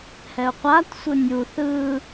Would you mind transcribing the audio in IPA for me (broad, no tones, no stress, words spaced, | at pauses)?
hɛʊ̯qʷatsʷɯ nʲu θɯ